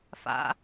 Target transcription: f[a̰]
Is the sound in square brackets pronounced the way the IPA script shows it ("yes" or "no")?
yes